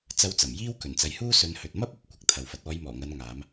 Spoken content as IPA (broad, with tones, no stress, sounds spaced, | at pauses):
t͡s ɐ˧ w t͡s ɐ˨˩ m j iː˥ w k ɵ˨˩ n t͡s ɐ˨˧ j h uː˥ s ɵ˨˧ n h ɵ˨ t̚ m ɐ˥ p̚ ɐ˨˥ p̚ kʷ ɐ˨ k̚ t̪ʰ ɐ˨ w f ɐ˨˥ t̚ ɔː˨˧ j m ɔː˨˩ ŋ ɐ˨˧ n ŋ aː˨˧ m